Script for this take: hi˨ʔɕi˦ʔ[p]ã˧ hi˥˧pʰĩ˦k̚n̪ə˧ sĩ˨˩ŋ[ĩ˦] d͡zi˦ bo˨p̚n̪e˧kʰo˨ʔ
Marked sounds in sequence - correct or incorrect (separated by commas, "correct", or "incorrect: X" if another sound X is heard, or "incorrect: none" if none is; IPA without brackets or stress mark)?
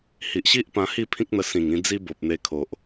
correct, incorrect: ĩ˧